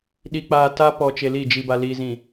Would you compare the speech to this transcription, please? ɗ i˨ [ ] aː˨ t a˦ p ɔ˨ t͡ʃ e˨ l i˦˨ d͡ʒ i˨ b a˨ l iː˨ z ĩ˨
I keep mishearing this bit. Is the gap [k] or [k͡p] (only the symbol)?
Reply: k͡p